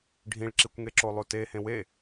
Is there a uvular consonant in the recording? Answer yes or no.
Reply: no